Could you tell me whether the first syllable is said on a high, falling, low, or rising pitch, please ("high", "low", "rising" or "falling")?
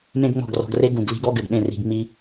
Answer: high